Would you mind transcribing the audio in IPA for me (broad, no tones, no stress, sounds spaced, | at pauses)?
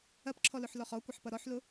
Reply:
ɐ p ǁʰ ɔ l ʊ ħ l ɔ χ ɔ kʷ ɐ ħ p ʌ ɾ ɔ ħ l ʊ